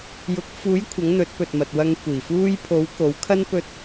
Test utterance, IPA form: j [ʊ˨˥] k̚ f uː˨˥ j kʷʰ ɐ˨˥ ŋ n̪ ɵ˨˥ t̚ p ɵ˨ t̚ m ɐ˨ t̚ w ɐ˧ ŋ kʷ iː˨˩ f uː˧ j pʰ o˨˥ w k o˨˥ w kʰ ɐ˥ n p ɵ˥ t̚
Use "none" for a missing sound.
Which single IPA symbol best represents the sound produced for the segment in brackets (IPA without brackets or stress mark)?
ʊ˨˥